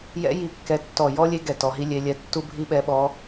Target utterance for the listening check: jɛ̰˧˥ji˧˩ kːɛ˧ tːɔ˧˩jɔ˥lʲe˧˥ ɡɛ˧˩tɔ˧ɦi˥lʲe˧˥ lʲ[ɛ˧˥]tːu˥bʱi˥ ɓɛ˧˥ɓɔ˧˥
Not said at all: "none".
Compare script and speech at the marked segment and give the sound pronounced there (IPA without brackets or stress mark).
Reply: ɛ˧